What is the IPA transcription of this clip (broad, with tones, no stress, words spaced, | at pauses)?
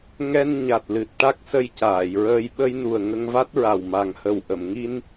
ŋɛ˧n ɲa˨˩t̚lɨ˨˩t̚ ʈa˦˥k̚sə˧jcaː˨˩˨jɹəː˧j ɓə˧jnu˨˩ə̯ ŋə˧ŋva˦˥t̚ɹa˨˩w ma˨˩ŋhə˨˩w ʔə˨˩˨mŋi˧n